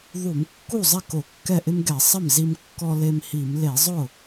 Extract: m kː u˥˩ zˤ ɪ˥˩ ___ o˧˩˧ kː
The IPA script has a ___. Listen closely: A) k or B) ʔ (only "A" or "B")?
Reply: A